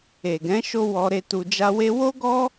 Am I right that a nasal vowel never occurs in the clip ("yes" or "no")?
no